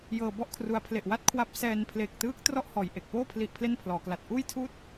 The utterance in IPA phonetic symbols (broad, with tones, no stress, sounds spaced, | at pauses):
j ɤː˧ b ɔ˥˩ ʔ kʰ r u˧ a̯ pʰ l e˨˩ ʔ w a˦˥ t̚ kʰ w a˦˥ p̚ s ɛː˧ n pʰ l e˨˩ k̚ t ɯː˦˥ k̚ t r ɔ˥˩ ʔ h ɔː˨˩ j ʔ e˨˩ k̚ p oː˥˩ pʰ l i˦˥ ʔ pʰ l e˥˩ n pʰ l ɔː˩˦ k l a˨˩ t̚ ʔ uː˥˩ j tʰ uː˥˩ t̚